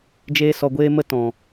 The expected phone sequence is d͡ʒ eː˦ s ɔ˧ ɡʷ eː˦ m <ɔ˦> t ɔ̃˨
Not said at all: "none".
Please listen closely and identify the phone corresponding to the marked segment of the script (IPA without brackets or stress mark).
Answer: ə˦